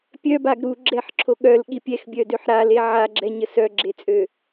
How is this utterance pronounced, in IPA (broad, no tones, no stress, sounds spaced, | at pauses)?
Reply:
pʲ œ b a ɡ ɾ u ɡ͡ǁ ɛ ħ ǁʰ o ɠ œ l ɠ i pʲ ɛ x bʲ œ d ø ħ ɾ a l e ʕ a ɡ͡ǁ ɛ ɲ ə s œ ɡ͡ǁ e t͡sʼ ø